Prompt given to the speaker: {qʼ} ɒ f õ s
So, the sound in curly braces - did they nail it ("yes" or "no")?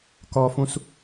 no